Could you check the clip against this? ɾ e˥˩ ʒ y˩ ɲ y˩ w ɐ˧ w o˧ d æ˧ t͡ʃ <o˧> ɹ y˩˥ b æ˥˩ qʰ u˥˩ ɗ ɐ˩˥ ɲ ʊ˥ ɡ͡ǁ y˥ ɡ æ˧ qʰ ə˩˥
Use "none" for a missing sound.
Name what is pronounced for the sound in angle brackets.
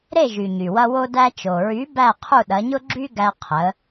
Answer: o˩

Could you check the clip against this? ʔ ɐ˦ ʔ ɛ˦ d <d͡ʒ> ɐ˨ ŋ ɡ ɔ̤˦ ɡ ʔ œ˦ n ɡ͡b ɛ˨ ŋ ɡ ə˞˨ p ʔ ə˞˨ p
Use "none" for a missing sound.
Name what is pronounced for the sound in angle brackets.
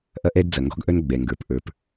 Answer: d͡z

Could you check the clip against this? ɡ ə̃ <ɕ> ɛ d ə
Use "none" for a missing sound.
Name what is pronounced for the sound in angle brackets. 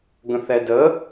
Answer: θ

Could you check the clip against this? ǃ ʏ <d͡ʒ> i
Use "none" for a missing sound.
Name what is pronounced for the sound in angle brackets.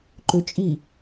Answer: t͡ʃʼ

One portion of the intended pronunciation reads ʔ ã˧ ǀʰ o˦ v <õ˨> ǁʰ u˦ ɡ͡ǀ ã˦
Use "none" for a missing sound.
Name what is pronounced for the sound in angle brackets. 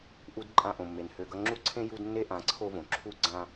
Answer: õ˨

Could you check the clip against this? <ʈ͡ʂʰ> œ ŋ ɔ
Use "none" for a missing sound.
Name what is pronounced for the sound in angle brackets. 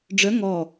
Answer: ɖ͡ʐ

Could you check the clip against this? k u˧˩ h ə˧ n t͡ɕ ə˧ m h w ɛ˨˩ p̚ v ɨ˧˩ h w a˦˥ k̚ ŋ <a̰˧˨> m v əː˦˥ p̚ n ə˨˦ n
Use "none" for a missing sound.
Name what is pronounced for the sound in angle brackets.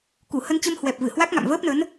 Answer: a̰˧˨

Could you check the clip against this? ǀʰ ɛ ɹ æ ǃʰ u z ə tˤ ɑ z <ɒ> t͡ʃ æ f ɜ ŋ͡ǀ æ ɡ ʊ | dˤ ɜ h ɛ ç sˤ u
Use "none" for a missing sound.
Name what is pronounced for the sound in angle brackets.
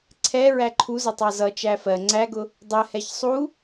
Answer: ʌ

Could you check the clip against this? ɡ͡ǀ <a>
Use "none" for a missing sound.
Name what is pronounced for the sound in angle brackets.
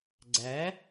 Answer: æ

